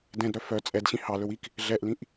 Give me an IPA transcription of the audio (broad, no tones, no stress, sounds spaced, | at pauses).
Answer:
d ɛ̃ d ɾ œ f œ t͡sʼ ɛ d ɕ ĩ h ɑ l ɵ w i k | ɮ ɛ ʔ l ĩ ʔ